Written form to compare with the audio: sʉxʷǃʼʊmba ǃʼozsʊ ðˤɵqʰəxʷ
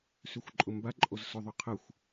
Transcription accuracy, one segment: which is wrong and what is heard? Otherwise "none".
ɵ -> ʊ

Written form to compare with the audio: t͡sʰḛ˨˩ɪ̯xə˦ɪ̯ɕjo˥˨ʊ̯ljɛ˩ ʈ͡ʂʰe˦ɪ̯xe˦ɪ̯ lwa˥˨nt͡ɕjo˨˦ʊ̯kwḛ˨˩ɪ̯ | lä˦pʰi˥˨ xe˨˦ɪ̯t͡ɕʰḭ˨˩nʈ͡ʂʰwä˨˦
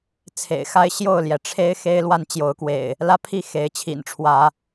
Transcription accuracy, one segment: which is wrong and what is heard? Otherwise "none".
ə˦ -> a˦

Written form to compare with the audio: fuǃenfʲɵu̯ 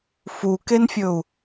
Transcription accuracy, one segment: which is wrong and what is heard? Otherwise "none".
ǃ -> k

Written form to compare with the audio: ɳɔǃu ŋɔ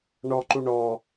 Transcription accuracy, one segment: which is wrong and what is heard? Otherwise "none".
ŋ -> ɳ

